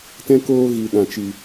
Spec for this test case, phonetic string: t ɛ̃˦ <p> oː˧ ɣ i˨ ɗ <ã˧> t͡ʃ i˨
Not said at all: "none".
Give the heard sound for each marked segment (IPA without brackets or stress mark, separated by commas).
k, ã˨